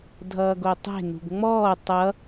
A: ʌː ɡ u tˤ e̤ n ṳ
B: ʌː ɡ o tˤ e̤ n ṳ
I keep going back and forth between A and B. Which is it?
B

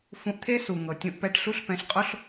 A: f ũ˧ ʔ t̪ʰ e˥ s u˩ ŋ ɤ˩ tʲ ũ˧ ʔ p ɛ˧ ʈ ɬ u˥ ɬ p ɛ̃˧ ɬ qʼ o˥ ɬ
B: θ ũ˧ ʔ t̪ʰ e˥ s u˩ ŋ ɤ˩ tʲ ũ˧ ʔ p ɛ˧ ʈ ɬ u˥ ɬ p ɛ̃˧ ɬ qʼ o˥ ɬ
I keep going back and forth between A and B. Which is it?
A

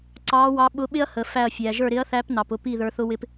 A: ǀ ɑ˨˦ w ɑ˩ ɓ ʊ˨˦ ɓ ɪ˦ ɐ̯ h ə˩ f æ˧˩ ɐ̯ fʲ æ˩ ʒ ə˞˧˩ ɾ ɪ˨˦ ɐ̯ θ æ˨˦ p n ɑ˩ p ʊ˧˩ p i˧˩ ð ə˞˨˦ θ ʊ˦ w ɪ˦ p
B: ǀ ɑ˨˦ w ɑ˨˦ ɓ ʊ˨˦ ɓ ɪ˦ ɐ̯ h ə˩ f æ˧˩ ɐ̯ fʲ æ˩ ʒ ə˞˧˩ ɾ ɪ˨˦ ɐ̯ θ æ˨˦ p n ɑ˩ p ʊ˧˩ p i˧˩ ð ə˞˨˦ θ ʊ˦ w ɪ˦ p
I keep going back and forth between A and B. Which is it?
B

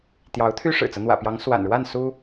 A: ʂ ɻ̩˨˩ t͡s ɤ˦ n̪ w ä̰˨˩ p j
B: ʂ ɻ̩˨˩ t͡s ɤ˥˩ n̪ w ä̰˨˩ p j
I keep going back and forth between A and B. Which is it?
A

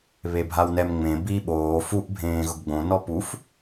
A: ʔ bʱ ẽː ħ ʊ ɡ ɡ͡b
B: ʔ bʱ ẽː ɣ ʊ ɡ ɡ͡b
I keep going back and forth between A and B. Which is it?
B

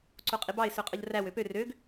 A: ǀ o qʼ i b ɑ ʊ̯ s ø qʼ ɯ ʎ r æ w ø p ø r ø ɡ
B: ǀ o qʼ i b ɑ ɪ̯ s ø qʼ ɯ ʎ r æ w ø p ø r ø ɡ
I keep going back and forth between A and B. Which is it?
B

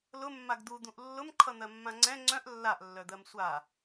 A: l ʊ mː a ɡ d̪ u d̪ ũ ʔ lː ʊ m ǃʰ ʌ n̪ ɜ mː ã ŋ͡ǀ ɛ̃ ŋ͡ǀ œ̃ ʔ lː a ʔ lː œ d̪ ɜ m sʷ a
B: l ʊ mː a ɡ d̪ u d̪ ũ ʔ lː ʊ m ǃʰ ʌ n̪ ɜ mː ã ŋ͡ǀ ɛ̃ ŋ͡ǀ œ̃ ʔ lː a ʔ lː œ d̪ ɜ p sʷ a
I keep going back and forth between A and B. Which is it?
A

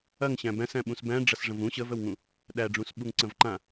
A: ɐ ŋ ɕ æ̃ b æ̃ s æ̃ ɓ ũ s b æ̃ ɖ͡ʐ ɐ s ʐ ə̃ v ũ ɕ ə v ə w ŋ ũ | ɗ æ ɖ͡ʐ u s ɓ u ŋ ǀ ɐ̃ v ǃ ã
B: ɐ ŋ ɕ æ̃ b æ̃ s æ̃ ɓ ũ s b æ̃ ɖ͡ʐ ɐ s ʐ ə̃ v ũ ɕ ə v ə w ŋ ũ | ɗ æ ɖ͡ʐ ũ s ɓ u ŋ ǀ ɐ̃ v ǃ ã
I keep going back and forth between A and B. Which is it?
B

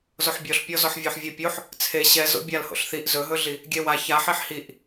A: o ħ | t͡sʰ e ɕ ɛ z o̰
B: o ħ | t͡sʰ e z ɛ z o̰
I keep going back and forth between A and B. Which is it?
A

